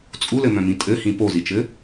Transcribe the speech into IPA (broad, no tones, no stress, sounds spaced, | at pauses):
t͡sʼ u l ɘ m œ̃ m ĩ tʼ ɘ h ĩ p o z i t͡ʃ ɘ